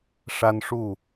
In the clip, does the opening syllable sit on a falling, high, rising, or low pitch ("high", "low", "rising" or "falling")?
high